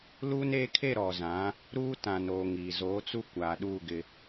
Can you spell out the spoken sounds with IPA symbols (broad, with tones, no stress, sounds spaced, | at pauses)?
l uː˦ n eː˦ kʰ e˦˨ ɾ ɔ˨ z ã˨˦ | ɾ uː˦ t ã˨ n oː˨ ŋ iː˨ z oː˨˦ t͡s u˦ kʷ aː˨ ɗ uː˦˨ ɡ ɪ˦